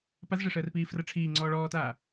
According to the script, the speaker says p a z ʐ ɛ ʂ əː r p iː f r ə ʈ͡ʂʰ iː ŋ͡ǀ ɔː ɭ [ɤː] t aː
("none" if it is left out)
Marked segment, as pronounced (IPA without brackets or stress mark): ɔː